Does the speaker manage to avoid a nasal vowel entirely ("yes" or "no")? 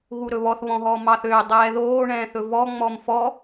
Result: no